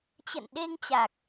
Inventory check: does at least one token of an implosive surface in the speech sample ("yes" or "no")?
yes